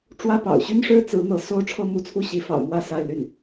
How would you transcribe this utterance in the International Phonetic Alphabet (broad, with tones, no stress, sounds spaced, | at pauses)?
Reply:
ʈ͡ʂ w ä˥ p ɑ̰˨˩ ʊ̯ ɕ y˥ n ʂ ɻ̩˥ t͡s ɹ̩˧˥ n̪ ɤ˧˥ s o˥˧ ʊ̯ ʈ͡ʂʰ ɤ˥˧ m u˥˧ t͡sʰ u˥˩ ɕ i˧˥ f ɑ̰˨˩ ʊ̯ m w ä˥˧ s a˥˧ ɪ̯ l y˥˩ n